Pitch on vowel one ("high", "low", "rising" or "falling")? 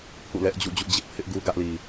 falling